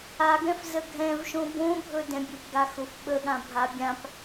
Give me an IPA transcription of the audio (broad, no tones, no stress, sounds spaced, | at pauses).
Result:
a ɡ ɛ̃ f z ə ɡʱ ɛ̃ v ʃ õ b õ bʱ ɵ d ɛ̃ bʲ ə b ɡ a x ʊ f ɓ ə ɠ ã bʱ a bʲ ã p